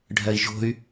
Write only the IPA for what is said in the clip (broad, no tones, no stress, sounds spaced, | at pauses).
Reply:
ɖʱ ɜ i̯ ʒ o̤ y̯